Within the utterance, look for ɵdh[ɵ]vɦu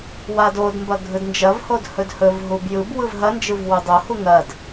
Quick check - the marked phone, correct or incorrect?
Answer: correct